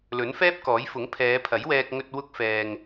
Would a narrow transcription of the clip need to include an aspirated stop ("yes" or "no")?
yes